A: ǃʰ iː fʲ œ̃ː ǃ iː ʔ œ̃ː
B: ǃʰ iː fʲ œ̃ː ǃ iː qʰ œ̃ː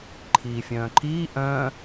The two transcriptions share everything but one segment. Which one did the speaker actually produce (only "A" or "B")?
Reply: A